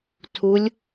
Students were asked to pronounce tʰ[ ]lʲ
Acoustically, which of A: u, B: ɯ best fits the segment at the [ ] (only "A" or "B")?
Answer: A